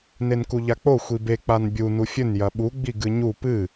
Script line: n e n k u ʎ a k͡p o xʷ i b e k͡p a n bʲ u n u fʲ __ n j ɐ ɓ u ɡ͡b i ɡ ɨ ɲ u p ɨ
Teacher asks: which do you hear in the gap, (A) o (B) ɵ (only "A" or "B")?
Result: B